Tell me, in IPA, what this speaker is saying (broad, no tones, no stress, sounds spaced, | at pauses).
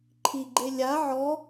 ǃʰ i ɡ͡ǃ e lʲ a ʕ ɔ